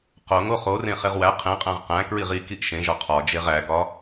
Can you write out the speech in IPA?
q o ŋ o χ o r ẽ χ e ʁ w æ qʰ ẽ qʼ æ̃ ʁ q æ̃ k ɹ i ʁ i k i ʔ ʃ ẽ ʒ ɒ qʰ ɒ d͡ʒ e ʁ æ ɡ ɒ

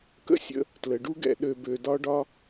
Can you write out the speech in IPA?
k ə̰˦ sʲ ə̰˧ | t l ə˨ ɖ u˦ ɡ ɛ̰˧ ɗ ø˧ b ø˧ d ɒ˦ ɖ ɒ˦

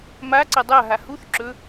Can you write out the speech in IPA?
m a ǀ ɐ dˤ a ɦ a h u θ ǁ ɵ

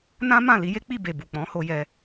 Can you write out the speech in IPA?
n ã˦ m ã˦˨ l i˨˦ j e˦ k͡p i˦˨ b e˨ b u˨ k͡p ɔ̃˨˦ h o˧ j ɛ˧

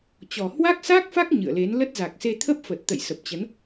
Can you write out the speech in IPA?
t͡ɕ ɔ˨˩ h w a˦˥ k̚ s a˦˥ k̚ f a˦˥ k̚ ɲ ɨ̰˧˨ ə̯ l e˨˦ n l ə˦˥ t̚ z a˨˩ k̚ s e˧ t̪ʰ ə˦˥ p̚ f ə˨˩ t̚ t̪ ə̰˧˨ j s ə˨˩ p̚ t͡ɕ ə˨˦ n

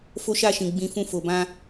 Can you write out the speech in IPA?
f o˦ ʃ a˦˨ ʃ ĩ˨ ɡ͡b ĩ˧ f ũ˧ f o˨ b ã˧

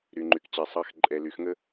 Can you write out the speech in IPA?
ɾ y˨ ŋ͡ǃ y˨ k t͡ɕ ɛ˨ sˤ ɑ˨ x ǃʼ ɛ˨ l y˨ x ŋ ə˦

